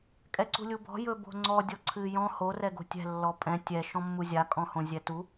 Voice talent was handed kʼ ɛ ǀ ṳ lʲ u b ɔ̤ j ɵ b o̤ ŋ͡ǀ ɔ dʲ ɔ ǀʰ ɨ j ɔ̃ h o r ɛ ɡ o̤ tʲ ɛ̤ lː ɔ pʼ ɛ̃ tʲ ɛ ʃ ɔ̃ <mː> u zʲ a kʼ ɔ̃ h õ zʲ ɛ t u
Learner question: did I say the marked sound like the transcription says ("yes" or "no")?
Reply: yes